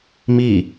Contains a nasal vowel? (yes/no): no